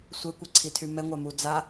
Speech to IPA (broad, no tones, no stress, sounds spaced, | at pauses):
sʷ e kʷ ɛ ǀʰ i tʰ y m ɛ ŋʷ a m u d͡z a